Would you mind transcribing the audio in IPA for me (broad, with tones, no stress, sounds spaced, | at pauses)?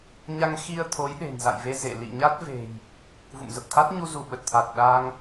ɲ a˧ ŋ x i˧ ə̯ t̪ʰ o˨˦ j ɗ e̤˨˩ n z a̰˧˨ j v e˧ z ḛ˧˨ l ḭ˧˨ ɲ a˦˥ t̚ v e̤˨˩ j | v ṵ˧˨ m z ə˨˩ p̚ t̪ʰ a˦˥ t̚ ɲ u˧ z u˧˩ ɓ ə˨˩ t̚ t̪ʰ a˨˩ t̚ ɗ a˧ ŋ